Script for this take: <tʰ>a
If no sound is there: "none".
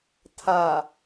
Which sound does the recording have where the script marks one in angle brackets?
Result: tʰ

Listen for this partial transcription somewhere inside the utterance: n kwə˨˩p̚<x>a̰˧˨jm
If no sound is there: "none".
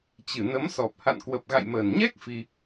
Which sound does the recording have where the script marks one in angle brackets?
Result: ɣ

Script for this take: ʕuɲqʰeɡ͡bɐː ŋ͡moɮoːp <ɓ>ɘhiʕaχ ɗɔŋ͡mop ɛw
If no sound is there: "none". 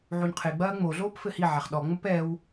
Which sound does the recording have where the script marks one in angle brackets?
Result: f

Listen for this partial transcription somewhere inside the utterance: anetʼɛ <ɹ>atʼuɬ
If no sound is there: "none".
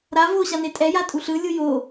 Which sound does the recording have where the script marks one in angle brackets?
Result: j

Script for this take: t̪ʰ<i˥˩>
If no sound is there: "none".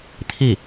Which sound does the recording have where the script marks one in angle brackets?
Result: i˥˩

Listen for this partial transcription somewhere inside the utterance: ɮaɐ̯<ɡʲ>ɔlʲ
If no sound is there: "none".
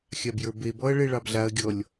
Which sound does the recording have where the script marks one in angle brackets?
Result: ɡʲ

